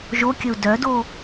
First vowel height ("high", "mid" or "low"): mid